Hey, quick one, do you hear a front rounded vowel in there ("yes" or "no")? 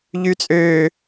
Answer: yes